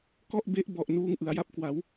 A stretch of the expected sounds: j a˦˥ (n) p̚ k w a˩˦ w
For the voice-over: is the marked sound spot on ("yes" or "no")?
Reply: no